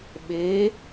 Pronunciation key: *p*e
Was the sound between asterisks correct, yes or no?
no